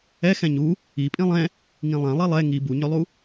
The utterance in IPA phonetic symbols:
ɛ x ɛ̃ ɲ u | i pʼ ĩ lˠ ɛ̃ | ŋ ĩ lˠ ɛ̃ lˠ i lˠ ɛ ŋ i b u ɲ ʏ lˠ u

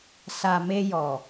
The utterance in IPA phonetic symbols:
s a˨ m e˧ j ɔ˨

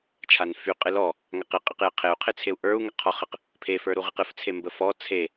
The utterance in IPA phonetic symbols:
t͡ʃʰ a n f y qʼ ɨ l ɔ | ŋ a q ɨ qʼ ɨ q j ə qʰ e u̯ qʰ e t͡sʰ e u̯ ʔ ə˞ u̯ ŋ ə qʰ ɔ χ ə q | pʰ e f ə˞ ɾ u ʁ ɨ q ɨ f t͡sʰ e m b ə f ɔ t͡sʰ e

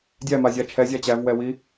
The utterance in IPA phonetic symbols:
dʲ æ m a zʲ a t͡ʃʰ ɛ zʲ a t͡ɕ æ v w ɛ w i

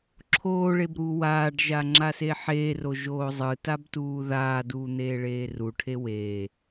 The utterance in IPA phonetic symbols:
ǁʰ oː ɭ e b ɾ uː w aː ɖ ʒ a ŋ͡ǁ a s e ħ eː r o ʒ oː zˤ ɯ t a b t uː ð aː d uː n̪ eː ɭ eː r u ʈʰ e w e

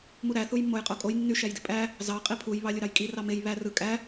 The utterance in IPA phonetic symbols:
m u ɾ æ θ u j mː o j qʼ o kʼ o j nː y ʃ æ j d i pʼ æ | z ɑ qʼ i pʰ u j β ɑ lʲ o ɾ ɑ j kʼ i r ɑ m e j β æ r ɯ kʼ æ

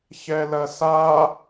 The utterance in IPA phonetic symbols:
ç ɛ l ɐ s a

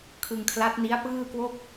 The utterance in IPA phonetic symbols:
kʰ ɯ˧ ŋ kʰ l a˦˥ t̚ n i˦˥ a̯ p ɯː˥˩ k w o˥˩ k̚

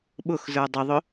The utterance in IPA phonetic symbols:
ɓ ʊ x z ə˞ dˤ ə ðˤ ʊ

